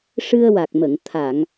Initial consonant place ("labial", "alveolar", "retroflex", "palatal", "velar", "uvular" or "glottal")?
retroflex